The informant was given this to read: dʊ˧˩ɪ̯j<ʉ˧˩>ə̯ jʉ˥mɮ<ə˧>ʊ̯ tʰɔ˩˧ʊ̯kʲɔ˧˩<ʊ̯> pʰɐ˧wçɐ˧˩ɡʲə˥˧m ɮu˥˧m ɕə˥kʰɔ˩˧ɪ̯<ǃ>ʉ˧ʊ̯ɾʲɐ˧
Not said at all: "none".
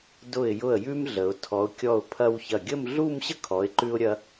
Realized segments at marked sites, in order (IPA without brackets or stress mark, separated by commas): ʊ˧˩, ə˩˧, ʊ̯, ǃ